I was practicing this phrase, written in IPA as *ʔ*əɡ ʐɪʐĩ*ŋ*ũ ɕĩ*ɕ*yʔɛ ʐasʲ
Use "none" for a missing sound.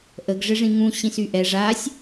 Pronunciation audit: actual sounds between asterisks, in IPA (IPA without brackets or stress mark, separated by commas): ʔ, ŋ, s